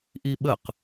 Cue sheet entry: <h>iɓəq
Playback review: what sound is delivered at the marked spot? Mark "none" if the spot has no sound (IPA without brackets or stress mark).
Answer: ʔ